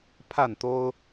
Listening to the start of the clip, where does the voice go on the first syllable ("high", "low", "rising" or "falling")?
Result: falling